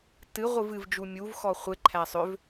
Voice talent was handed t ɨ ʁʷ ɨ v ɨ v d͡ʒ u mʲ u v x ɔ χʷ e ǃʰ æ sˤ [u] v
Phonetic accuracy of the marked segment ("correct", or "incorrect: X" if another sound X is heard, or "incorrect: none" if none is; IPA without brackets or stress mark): incorrect: ʏ